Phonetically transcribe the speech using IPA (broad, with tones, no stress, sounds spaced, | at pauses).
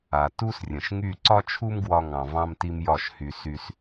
a˨ t u˦ s rʲ ə̃˨ ʃ ŋ y˦˨ ǀ ɒ˦ t͡ʃʰ u˦ m ɡ w ɒ˧ ŋ ɑ̃˨ v ɑ̃˧ m t i˧ m j ɒ˦˨ ʃ h y˧ s y˧ s